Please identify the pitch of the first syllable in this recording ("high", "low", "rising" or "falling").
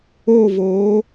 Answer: falling